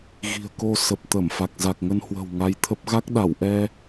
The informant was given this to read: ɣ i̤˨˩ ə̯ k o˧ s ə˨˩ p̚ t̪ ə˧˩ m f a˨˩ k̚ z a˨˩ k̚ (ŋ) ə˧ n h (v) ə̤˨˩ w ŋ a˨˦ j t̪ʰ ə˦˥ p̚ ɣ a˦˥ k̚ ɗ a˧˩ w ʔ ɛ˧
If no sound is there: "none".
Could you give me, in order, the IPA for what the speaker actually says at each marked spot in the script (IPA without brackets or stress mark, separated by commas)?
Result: ŋ, w